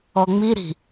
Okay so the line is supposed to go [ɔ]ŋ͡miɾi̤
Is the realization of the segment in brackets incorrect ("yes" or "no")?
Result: no